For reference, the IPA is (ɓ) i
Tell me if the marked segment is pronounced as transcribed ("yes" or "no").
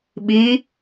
yes